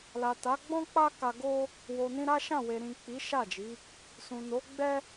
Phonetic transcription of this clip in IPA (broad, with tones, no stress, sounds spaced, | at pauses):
l a˨ t a˨˦ ɡ͡b ɔ̃˦ k͡p a˦ k a˧ ɡ o˦ | w o˨ n ĩ˧ ɾ a˦ ʃ ã˦˨ w e˨ ɾ ĩ˨ k͡p i˨˦ ʃ a˦˨ d͡ʒ i˨˦ | s ũ˨ n o˨˦ ɡ͡b ɛ˦